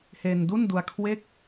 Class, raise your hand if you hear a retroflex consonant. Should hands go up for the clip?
no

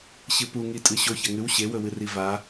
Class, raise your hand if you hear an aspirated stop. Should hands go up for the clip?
no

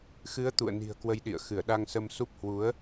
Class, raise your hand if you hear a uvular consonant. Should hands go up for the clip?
no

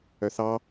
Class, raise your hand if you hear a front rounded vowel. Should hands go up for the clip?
yes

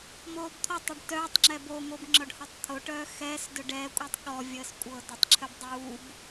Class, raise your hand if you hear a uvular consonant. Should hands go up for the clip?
no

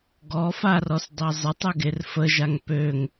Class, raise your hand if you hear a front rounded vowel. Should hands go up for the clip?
yes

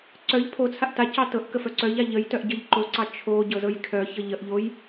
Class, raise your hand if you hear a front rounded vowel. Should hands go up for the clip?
yes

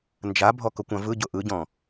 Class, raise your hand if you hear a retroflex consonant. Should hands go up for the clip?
no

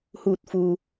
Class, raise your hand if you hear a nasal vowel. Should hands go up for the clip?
no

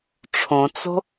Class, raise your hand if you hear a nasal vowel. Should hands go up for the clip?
yes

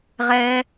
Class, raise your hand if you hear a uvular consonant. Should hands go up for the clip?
yes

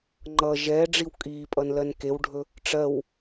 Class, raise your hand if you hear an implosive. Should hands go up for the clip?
no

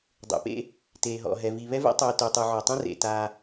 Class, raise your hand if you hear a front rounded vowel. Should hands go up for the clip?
yes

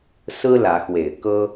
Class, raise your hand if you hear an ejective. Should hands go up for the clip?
no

